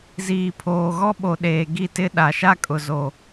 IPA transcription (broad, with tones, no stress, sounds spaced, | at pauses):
z iː˨ pʰ oː˨ ɣ ɔ˦ ɓ o˨ ɗ eː˨ ɡ i˦˨ t ɪ˦ ɗ a˨ ʃ a˦ kʼ ʊ˨ z o˨